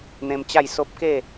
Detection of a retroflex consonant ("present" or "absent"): absent